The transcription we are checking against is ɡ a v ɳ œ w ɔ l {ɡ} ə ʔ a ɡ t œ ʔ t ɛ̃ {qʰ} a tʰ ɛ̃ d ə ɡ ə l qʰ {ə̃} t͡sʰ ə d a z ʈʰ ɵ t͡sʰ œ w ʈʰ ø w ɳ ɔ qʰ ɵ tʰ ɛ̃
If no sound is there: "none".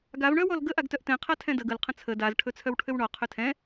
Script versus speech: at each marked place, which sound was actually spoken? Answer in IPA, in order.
ɡ, qʰ, ə̃

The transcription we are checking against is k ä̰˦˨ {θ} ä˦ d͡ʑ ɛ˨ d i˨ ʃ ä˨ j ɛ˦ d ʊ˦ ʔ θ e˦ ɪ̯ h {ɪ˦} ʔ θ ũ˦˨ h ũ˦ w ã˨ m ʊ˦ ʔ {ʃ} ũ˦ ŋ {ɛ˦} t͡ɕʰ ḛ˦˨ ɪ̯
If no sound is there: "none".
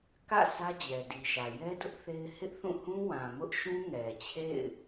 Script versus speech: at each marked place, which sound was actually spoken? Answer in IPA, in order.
s, ɪ˦, ʃ, ɛ˨

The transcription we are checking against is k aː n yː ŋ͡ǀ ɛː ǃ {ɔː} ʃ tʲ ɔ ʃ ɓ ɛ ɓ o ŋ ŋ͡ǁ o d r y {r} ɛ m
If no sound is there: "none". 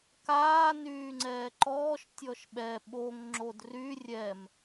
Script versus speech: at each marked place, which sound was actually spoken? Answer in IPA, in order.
ɔː, rʲ

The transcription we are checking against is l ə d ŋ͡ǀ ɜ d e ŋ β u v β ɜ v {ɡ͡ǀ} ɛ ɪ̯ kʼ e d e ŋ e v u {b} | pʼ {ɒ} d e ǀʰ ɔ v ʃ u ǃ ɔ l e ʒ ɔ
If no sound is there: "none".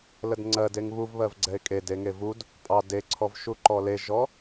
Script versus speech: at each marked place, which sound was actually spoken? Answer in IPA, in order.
ɡ͡ǀ, d, ɑ

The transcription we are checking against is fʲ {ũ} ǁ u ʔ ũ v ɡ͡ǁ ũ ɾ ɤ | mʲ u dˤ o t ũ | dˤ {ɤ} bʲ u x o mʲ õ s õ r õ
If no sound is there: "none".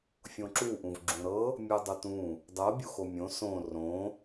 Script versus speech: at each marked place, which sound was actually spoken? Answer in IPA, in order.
õ, ɤ

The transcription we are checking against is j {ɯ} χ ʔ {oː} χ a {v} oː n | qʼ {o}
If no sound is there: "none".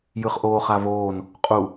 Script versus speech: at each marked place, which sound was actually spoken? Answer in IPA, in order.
ɯ, oː, v, u

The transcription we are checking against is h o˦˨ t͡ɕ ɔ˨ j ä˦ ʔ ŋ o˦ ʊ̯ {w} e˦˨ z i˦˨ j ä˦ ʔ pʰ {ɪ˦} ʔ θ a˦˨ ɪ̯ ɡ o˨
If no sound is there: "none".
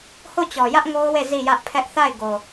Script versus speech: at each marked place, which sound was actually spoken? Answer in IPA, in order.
w, ɛ˦

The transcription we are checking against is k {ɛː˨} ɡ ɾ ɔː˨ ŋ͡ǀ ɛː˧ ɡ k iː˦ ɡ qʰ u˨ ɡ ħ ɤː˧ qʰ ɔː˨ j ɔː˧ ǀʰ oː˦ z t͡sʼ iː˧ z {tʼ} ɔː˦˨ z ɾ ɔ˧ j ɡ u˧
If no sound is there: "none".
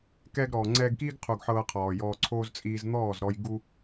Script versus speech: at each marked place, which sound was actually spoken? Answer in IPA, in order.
ɛː˧, n̪

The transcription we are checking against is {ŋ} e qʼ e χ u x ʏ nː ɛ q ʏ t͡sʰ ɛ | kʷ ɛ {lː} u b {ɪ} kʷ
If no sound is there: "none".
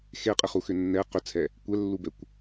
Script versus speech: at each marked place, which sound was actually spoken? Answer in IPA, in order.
x, lː, ɛ

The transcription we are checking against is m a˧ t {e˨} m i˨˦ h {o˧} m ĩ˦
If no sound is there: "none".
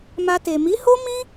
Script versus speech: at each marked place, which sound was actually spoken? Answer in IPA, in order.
e˨, o˦

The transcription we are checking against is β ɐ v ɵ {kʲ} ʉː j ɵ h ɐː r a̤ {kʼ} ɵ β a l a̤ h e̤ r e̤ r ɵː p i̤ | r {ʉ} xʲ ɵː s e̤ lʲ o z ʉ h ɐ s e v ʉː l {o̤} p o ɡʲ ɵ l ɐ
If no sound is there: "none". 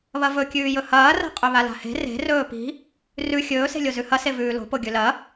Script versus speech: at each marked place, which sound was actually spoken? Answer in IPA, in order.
kʲ, qʼ, ʉ, o̤

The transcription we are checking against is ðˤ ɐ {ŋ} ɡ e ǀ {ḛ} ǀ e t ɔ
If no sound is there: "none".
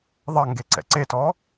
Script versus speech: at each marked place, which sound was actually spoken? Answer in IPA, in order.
ŋ, ɛ̰

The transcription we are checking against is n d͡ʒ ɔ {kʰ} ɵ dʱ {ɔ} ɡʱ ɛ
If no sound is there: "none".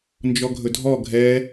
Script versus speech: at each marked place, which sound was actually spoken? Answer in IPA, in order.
ɡʱ, ɔ

